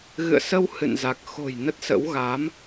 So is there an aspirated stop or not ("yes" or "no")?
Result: no